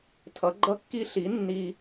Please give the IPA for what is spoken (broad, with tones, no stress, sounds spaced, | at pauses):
tʰ ʌ˨˦ ɡ͡ǃ ʌ˦ kː i˦ ɬ i˨˦ nː i˦